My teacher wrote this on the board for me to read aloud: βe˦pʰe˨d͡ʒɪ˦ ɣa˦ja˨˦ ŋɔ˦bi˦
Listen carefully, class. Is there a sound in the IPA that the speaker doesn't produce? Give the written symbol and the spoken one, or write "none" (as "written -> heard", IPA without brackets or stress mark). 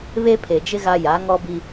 none